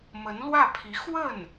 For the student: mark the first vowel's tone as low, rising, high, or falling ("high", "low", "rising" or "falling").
rising